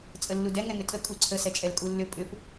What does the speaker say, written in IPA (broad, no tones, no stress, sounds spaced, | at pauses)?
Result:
t͡sʼ ə lː u d ɛ ŋ ɛ ŋ ʏ tʼ ə kʼ u ǀʰ ə s ɛ t͡ʃʼ ɛ l kʼ u lː ʏ pʼ ʏ p